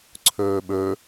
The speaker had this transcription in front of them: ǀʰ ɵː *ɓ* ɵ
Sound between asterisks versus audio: correct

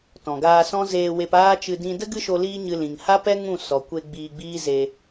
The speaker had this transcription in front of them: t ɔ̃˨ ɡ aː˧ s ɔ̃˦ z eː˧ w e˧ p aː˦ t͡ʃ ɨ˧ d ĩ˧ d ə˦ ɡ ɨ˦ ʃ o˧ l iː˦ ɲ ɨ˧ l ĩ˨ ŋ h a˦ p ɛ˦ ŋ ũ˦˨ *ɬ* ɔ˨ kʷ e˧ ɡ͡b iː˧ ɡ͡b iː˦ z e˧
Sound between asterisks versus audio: incorrect: s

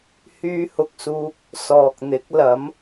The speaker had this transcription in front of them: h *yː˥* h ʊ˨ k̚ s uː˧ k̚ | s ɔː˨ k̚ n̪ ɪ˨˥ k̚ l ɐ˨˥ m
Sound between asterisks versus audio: incorrect: yː˧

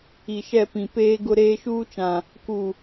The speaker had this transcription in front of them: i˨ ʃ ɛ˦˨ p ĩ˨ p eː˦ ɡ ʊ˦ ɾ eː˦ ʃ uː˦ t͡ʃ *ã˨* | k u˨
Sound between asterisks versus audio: correct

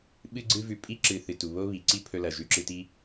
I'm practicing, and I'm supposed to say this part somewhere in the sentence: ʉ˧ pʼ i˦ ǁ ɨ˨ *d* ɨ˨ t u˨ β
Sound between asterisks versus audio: incorrect: θ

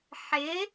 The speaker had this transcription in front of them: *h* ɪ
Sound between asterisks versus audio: incorrect: ħ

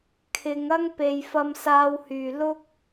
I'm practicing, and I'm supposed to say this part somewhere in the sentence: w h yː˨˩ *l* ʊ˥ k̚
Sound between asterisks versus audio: correct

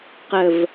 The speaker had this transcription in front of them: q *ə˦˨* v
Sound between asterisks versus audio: incorrect: ə˨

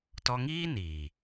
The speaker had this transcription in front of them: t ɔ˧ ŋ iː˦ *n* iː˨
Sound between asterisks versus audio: correct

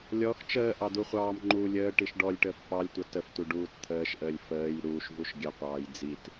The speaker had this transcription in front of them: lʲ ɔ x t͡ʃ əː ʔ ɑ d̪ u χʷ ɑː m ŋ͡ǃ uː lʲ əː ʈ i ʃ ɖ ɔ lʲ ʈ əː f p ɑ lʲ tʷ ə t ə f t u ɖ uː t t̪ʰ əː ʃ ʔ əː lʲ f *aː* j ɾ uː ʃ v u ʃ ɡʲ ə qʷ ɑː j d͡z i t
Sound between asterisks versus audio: incorrect: əː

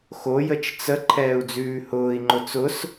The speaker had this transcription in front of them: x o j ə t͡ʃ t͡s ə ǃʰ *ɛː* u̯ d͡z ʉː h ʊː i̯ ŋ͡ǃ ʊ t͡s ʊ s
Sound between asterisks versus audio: correct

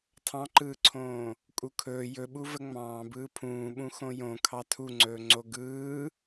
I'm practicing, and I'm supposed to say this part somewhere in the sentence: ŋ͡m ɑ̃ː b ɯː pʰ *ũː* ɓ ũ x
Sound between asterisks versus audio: correct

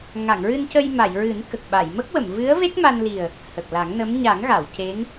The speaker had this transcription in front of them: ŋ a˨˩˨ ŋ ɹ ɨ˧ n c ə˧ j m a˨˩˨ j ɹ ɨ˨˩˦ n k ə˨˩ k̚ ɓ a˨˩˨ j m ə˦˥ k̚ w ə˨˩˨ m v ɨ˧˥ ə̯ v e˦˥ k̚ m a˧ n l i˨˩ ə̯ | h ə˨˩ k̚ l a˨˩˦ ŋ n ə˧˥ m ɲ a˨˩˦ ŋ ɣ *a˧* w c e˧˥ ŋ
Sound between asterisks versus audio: incorrect: a˨˩˨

